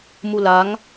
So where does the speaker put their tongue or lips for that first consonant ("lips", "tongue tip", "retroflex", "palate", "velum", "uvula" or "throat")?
lips